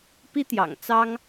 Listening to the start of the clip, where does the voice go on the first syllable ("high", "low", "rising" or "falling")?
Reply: high